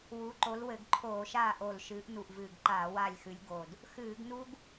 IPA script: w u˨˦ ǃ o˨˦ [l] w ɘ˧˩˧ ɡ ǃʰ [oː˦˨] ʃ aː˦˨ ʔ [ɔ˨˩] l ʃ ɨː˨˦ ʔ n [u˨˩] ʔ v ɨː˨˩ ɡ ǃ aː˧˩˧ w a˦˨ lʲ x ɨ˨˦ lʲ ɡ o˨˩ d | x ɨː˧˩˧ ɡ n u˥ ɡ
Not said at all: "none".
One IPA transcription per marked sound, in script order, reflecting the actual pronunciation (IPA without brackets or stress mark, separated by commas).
l, oː˧˩˧, o˨˩, u˨˩